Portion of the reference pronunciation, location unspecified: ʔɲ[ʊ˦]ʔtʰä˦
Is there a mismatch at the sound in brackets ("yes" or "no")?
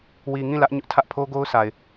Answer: no